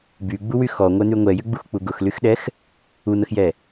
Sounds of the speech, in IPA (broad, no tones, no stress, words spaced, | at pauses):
byɡ͡buwy xɔŋʷɛn̪y ŋʷɛjʏɡ͡buxk͡pu ɡʊxlyxɗɛx | un̪əxjɛ